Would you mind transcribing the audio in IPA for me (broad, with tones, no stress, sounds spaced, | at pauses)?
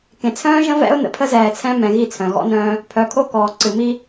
k ẽ˨ t͡sʰ œ̃ː˦ ʒ ə̃˦ v ɛ̰˦ ʊ̯ n ə̰˨ pʰ ə˦ z ɛː˨ t͡sʰ ɛ̃˦ m ɛ̃˨ ɣ i˦˨ t͡sʰ œ̃˨ ɣ ɔ̰˦ n œ̃ː˦ | pʰ œ˨ kʰ o˦ k ɔː˨ ǀ ɨ˨ m i˦